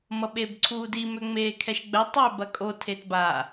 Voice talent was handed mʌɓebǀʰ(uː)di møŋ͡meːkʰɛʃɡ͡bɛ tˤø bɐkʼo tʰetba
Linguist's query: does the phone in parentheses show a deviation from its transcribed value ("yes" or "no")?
no